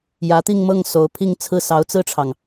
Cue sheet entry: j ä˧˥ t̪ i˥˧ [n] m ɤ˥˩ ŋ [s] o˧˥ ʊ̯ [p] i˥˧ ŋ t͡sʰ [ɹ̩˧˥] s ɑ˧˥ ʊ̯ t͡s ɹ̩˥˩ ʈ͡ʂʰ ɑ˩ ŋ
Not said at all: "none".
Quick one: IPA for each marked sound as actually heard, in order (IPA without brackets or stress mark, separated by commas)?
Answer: ŋ, s, pʰ, ɹ̩˥˩